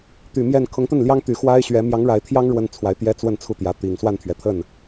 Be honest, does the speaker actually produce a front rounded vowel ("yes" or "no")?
yes